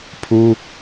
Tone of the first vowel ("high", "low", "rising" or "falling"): high